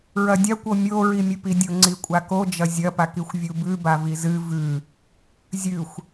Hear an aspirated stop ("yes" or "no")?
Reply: no